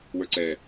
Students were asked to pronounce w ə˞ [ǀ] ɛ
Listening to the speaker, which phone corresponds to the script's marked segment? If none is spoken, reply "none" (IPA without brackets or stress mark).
ǀ